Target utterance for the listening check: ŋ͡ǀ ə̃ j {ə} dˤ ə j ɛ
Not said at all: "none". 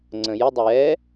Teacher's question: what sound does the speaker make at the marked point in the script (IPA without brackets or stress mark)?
ə